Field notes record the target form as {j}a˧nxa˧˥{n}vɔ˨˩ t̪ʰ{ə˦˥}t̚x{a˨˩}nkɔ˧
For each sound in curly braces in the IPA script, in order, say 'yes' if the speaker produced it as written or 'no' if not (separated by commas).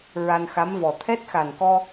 no, no, no, yes